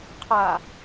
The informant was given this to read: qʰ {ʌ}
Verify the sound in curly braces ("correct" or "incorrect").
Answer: incorrect